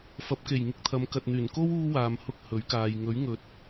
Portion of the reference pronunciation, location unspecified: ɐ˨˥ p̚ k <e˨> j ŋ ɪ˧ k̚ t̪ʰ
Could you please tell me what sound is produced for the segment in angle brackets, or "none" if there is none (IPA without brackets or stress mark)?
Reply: e˨˩